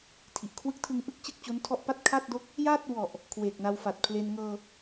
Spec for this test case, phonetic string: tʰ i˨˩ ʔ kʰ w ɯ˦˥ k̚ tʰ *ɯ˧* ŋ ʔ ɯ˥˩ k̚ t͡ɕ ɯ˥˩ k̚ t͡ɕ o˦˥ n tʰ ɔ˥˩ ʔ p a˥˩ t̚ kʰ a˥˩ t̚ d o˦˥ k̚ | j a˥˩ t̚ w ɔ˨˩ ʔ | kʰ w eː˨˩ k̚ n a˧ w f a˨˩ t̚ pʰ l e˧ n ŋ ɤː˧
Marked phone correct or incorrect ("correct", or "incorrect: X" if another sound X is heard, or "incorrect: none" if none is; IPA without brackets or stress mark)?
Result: correct